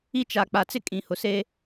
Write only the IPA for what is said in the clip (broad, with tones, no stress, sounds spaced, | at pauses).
i˦ t͡ʃ a˨ k͡p a˨ t͡s ɪ˦ kʼ ĩ˨ h ʊ˨ s e˦